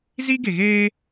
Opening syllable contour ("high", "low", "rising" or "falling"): high